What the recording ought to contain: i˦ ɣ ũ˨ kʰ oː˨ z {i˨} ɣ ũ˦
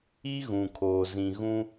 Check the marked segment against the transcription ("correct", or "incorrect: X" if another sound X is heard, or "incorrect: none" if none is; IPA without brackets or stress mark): incorrect: ĩ˨